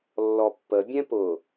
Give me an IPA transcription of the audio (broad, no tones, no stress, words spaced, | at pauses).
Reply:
lːɔpːə bʲɛ̃pʊ